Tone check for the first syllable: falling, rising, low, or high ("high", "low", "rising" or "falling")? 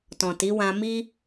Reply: low